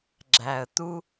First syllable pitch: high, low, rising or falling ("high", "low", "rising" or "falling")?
low